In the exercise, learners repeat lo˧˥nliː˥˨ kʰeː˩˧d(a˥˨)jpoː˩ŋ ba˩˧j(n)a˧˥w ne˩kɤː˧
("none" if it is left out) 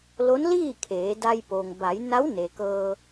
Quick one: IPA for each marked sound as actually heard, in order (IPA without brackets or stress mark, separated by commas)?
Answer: a˧, n